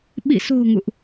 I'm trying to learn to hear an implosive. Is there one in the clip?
yes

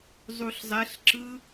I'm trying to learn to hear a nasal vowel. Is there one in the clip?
no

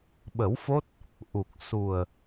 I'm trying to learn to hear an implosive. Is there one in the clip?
yes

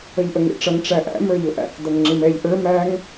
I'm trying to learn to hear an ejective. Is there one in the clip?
no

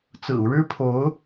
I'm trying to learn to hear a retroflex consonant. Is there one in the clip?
yes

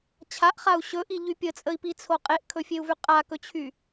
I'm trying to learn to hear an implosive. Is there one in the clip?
no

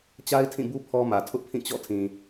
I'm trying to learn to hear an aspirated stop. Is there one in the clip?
yes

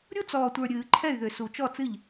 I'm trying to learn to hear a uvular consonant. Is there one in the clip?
no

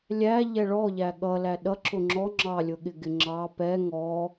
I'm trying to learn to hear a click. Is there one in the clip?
yes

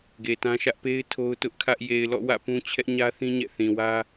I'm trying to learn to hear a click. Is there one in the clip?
no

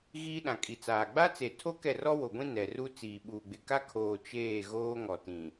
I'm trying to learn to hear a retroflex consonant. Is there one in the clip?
no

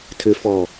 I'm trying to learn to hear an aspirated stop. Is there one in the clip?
yes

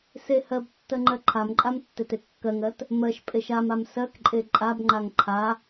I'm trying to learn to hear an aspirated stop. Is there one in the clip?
yes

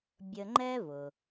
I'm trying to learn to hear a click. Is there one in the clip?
yes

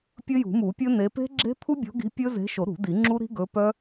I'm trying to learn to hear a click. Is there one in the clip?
yes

